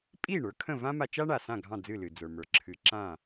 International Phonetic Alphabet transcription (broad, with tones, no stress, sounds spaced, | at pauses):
pʼ i˥˩ ɳ ə˞˩˥ kʰ ə̃˥˩ v ã˥ m a˧ t͡ʃ a˥ ɳ a˩ s ã˥˩ ɡʱ ɑ̃˥˩ d͡z ɨ˥˩ l ɨ˩ d͡z ə˞˩ m ə˞˩ ǁʰ ɨ˩˥ ǁ ã˥˩